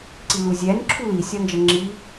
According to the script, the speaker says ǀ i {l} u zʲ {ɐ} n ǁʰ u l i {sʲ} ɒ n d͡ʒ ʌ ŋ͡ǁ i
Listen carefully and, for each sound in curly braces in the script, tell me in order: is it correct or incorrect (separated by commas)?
correct, incorrect, correct